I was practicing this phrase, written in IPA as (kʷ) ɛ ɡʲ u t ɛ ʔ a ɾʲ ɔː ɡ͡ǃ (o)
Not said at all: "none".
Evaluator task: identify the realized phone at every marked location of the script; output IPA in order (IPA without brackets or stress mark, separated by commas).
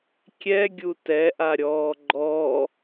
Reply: kʲ, ɔ